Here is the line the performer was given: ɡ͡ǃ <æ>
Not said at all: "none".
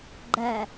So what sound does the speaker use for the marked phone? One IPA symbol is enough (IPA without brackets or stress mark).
æ